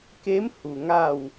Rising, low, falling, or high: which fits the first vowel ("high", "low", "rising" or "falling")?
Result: rising